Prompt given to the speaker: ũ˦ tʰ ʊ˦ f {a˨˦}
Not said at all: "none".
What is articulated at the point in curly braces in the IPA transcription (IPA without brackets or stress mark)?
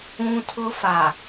a˨